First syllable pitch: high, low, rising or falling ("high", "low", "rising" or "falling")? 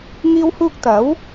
high